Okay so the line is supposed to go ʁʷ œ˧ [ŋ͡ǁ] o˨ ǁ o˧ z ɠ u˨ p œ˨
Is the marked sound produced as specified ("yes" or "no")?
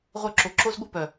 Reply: no